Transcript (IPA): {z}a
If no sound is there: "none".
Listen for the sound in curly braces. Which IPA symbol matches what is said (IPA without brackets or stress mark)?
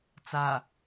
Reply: t͡s